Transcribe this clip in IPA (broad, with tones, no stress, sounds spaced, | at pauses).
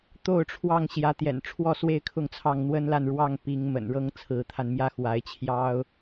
t̪ o˥˨ ʊ̯ ʈ͡ʂʰ w ɑ˥˨ ŋ ɕ j ä˨˦ t̪ j ɛ̰˨˩ n ʈ͡ʂʰ w ɔ˥˨ s w e˥˨ ɪ̯ kʰ ʊ˥˨ ŋ t͡sʰ ɑ˥˨ ŋ n̪ w ə˦ n l a˥˨ n ɻ w ɑ˥˨ ŋ p i˨˦ ŋ m ə̰˨˩ n ɻ ɤ˦ ŋ t͡sʰ ɹ̩˨˦ t̪ʰ a˧ n m j ä˦ x w a˨˦ ɪ̯ t͡ɕʰ j ɑ˦ ʊ̯